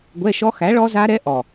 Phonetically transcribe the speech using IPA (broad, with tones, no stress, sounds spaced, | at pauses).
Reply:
ɡʷ ɛ˧˥˧ ʃ ɔ˦˥ x æ˨˥ ɭ ɔ˦˥ z a˦˥ ɾ ɛ˦˥ ʔ ɔ˨˩